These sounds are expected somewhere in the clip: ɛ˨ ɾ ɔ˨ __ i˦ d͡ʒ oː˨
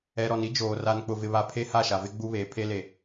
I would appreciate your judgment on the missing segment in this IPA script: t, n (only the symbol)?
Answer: n